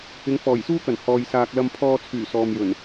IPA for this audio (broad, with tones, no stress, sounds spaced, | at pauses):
ɪ˨˧ ŋ f ɔː˨˩ j s uː˥ k ɐ˨˩ n h ɔː˨ j s aː˨ k̚ l ɐ˧ m pʰ ɔː˧ t͡sʰ yː˨˩ s ɔː˨ m j ɵ˨˩ n